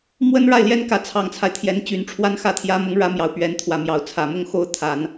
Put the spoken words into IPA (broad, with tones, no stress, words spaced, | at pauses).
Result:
mwə˥nɻa˥˩ɪ̯ljɛ˥nkä˧˥ t͡sʰɑ˨˩ŋt͡sʰa˦ɪ̯t̪ʰjɛ˧˥n t͡ɕy˧˥nʈ͡ʂʰwa˥nxä˥t̪ʰjä˥ mʊ˧˥ŋɻä˧˥ mjɑ˨˩ʊ̯pɥɛ˧˥nt̪ʰwä˨˩mjɑ˧˥ʊ̯ t͡sʰä˨˩mʊ˥˩ŋxo˥ʊ̯ t̪ʰa˨˩˦n